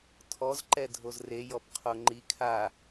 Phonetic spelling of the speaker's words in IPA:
tʰ ɔ z ǃ ɛ dʱ o z r e j ɔ p qʰ o ŋ͡ǃ i kʰ a

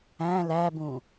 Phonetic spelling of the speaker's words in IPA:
æ̃ l æ b ũ

